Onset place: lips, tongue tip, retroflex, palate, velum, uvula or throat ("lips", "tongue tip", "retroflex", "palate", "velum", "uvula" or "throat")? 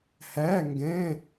throat